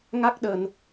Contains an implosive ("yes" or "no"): yes